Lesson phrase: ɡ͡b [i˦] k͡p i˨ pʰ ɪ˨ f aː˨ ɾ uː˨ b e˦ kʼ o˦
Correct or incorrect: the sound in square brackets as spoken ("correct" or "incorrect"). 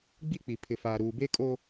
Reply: correct